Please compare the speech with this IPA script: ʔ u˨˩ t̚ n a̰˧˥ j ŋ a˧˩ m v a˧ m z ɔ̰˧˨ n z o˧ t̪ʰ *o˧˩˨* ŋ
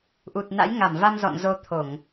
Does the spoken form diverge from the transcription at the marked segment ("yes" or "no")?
no